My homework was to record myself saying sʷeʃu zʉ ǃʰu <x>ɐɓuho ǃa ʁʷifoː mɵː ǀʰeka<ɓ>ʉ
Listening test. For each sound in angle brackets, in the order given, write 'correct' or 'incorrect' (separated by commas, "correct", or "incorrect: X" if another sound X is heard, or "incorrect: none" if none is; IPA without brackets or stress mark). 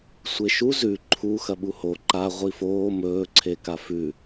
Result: correct, incorrect: f